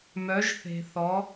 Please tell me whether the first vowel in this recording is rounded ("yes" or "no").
yes